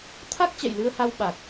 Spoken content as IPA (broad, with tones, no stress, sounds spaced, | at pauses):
t̪ʰ a˦˥ k̚ t͡ɕ ɛ̰˧˨ j l ɨ˧ ə̯ h a˧ w ɓ a˨˩ k̚